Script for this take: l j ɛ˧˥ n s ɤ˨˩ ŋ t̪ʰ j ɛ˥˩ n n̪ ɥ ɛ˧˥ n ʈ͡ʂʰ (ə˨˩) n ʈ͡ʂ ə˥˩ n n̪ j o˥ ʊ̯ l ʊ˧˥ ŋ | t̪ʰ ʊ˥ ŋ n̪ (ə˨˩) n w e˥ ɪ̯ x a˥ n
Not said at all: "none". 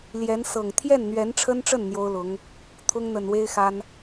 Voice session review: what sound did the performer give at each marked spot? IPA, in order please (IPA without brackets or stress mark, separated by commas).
ə˥, ə˨˩